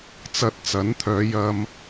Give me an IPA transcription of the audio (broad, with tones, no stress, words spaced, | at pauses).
t͡sɐ˨t̚ t͡sɐ˨˥nt̪ʰœː˨˧ jɐ˧m